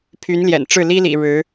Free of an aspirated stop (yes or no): no